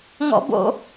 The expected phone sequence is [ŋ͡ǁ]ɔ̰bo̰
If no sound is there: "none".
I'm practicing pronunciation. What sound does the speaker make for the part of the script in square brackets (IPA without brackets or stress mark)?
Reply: ŋ